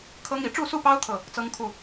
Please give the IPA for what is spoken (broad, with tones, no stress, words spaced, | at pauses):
kʰɤ˦ŋ i˨˩ ʈ͡ʂu˥˨su˥˨pɑ˦ʊ̯ t̪ʰɤ˥˨ | t͡sɤ˦ŋkʰu˥˨